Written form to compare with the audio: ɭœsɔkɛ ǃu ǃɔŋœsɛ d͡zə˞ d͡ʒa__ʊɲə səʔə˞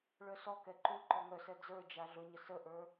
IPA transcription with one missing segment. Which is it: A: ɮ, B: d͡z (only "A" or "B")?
A